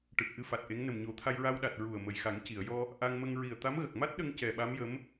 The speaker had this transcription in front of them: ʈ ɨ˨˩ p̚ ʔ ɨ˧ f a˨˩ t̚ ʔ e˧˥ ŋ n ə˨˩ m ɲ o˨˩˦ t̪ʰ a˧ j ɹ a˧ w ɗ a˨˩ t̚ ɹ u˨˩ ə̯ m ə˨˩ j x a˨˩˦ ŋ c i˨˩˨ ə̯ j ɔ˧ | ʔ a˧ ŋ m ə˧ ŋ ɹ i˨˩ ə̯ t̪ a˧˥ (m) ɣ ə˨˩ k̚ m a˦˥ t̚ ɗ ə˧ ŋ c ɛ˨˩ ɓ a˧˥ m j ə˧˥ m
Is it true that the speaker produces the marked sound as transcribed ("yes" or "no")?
yes